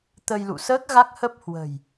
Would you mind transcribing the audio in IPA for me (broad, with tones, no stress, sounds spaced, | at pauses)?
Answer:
t̪ ə˧ j l ṵ˧˨ s əː˦˥ k̚ ɣ a˦˥ k̚ h ə˦˥ p̚ h w ə̤˨˩ j